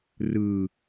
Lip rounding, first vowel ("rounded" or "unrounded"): unrounded